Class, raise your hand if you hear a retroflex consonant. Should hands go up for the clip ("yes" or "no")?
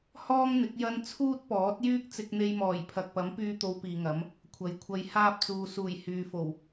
no